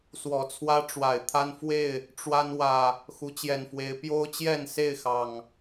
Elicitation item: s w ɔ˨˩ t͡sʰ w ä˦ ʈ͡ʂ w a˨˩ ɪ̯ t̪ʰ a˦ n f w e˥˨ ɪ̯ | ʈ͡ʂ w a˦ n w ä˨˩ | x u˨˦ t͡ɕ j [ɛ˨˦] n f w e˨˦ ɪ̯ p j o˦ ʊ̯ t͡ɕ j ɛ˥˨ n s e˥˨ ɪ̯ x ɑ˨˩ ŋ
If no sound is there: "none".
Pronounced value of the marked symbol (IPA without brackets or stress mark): ɛ˨˩